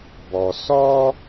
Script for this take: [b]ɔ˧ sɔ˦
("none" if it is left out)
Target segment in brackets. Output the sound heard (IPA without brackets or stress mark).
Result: b